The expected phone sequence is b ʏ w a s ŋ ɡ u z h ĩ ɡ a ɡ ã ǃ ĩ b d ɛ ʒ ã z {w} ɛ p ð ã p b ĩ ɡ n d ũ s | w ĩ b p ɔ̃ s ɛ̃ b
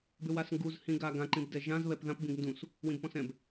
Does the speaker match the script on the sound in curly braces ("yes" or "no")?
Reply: no